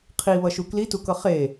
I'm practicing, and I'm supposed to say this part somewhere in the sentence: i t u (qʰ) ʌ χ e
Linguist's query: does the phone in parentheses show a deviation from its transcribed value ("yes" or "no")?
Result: yes